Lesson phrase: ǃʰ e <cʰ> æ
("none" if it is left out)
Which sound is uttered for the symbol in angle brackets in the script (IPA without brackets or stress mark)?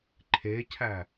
cʰ